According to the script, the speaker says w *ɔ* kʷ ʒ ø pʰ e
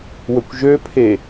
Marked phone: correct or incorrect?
incorrect